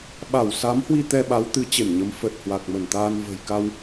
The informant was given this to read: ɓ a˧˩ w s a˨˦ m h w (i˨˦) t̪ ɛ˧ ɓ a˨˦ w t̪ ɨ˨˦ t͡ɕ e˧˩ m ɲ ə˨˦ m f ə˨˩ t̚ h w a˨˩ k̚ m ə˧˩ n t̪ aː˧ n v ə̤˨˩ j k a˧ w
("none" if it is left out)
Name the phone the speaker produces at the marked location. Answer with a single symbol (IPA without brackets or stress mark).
i˧